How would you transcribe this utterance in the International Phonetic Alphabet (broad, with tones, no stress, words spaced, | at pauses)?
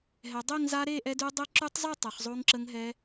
ɦɛ˩˧dˤe˥˧ŋ za˦˥ ɾe˥˧ʔɛ˦˥dʉ˦˥ dˤe˦˥ǁʉ˦˥tˤzˤʉ˥˧ tˤɛ˩˧χzˤo˦˥ŋǁə˦˥ŋɦɛ˦˥